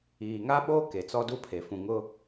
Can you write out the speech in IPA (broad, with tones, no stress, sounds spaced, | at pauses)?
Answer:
iː˨ ŋ a˦ ɓ oː˦ k e˨ t͡s ɔ˦ d u˦ pʰ e˨ f ũ˨ ŋ ʊ˦